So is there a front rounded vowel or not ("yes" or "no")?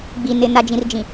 no